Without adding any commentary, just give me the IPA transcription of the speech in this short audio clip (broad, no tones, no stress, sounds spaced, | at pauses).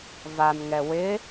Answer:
v a n ŋ ɛ w ɪ